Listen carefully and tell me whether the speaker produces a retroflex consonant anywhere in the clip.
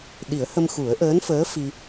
no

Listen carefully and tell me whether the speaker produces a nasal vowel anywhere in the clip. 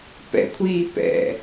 no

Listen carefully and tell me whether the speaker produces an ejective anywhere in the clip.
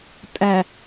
yes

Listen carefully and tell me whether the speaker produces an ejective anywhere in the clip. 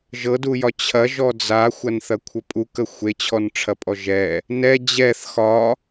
yes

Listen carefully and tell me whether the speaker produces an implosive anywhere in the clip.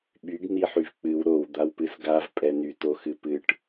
yes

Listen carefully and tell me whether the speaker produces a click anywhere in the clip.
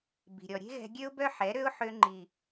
yes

